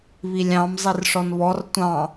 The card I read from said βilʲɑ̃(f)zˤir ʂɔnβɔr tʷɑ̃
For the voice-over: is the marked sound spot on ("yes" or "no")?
no